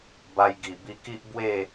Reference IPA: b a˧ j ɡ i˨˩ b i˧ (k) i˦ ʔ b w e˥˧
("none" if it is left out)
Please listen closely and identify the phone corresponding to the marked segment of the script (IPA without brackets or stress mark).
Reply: k